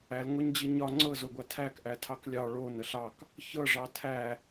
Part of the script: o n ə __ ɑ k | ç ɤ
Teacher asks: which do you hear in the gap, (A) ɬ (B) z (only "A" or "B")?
A